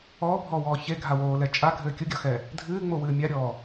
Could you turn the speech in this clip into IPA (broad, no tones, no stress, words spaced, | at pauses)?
ɔːbʱɔːwɔː çeɡʱawoːlɛ t͡ʃʼaɡʱɘː kʲuɡʲɔxɛ | dʱɨːŋ͡mowɨː mʲaɾʲɔː